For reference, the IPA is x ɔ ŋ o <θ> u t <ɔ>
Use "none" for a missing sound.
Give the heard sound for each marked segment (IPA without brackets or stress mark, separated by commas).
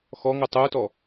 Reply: tˤ, ɔ